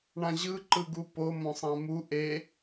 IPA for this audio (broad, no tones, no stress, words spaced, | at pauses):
ɳãʑɯ ǃɯɡupo mõsˤãmu ʔe